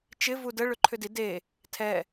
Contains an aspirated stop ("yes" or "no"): yes